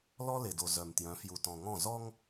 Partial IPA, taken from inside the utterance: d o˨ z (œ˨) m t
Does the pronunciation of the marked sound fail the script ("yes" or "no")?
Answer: no